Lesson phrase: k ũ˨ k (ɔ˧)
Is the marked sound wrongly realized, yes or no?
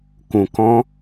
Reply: yes